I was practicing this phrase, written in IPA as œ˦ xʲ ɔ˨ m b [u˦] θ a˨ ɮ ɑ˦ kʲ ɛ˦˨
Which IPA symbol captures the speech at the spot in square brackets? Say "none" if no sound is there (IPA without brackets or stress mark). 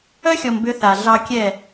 ʏ˦